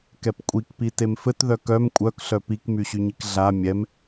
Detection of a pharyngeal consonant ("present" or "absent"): absent